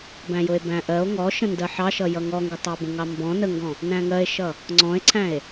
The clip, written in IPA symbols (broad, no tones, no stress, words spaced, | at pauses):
bæ̃jʊe̯bæ̃ʔɜo̯ ŋɔʃə̃ ndɜħɑ ʃʌjʌŋɔŋɡʊ tˤɑbə̃ŋɑmbɔ̃ nəŋɡɔ̃ | næ̃ŋɜe̯ʃʌ | ŋ͡ǀɔ̃e̯ǀʰæ̃e̯